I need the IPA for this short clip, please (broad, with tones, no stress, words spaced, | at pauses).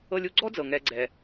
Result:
ɤ˦lʲu˦ ɡ͡ǀɔ˥d͡zɤ˩ ŋɛ˨ɡ͡ǀɛ˩